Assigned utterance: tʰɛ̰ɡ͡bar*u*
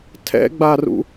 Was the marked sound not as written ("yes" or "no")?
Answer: yes